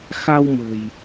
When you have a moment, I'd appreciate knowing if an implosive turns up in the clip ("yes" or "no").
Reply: no